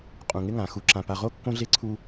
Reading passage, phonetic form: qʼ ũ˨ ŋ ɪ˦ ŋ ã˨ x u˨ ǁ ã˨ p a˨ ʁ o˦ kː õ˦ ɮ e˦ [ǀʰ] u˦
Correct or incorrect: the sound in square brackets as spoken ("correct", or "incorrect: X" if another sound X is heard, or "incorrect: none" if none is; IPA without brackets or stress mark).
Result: correct